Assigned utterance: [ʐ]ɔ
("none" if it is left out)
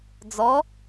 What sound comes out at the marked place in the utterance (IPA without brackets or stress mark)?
d͡z